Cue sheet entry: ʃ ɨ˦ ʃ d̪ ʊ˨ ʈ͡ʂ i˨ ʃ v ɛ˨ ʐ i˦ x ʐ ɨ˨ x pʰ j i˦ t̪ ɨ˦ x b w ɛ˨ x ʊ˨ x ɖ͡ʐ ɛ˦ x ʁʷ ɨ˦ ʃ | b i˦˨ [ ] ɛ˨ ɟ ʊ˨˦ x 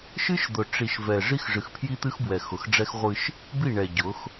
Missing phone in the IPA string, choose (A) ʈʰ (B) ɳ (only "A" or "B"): B